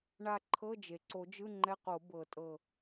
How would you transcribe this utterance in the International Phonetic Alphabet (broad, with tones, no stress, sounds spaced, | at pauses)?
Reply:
ɳ a˧˩ ǃʰ ɤ˧˥˧ d͡ʒ e˩ ǀ o˨˩˦ d͡ʒ ɯ˧˥˧ ŋ͡ǃ ɛ˧˥˧ q o˨˩˦ b ɤ˨˩˦ tʼ ɤ˧˩